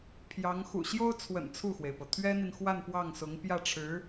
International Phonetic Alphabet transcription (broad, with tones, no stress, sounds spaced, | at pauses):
pʰ j ɑ˧˥ ŋ x ṵ˨˩ ɕ j o˥ ʊ̯ t͡sʰ w ə̰˨˩ n t͡sʰ u˥˩ x w e˩ ɪ̯ p ɤ˩ t̪ʰ ɥ ɛ˥ n̪ i˨ n x w a˥˧ n p w ɑ˥˩ ŋ s ʊ˧˥ ŋ p j ä˥˩ ʈ͡ʂʰ ɻ̩˧˥